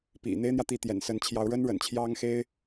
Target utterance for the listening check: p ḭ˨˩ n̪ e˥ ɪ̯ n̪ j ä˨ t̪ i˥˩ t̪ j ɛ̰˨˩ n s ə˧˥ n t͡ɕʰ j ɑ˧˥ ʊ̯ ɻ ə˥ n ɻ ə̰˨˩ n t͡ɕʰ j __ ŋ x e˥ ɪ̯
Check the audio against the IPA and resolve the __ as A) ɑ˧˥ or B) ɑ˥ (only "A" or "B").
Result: B